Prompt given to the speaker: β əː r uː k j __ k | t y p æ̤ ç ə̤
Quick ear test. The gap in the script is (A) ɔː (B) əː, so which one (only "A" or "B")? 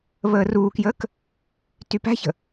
B